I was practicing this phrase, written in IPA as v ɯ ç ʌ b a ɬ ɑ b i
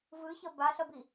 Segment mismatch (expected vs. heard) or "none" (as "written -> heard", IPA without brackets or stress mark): ɑ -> ʌ